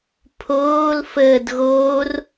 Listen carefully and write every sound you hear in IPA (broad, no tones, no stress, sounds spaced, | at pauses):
pʰ oː l f əː d ɣ oː r